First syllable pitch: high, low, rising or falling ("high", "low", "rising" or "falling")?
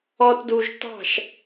high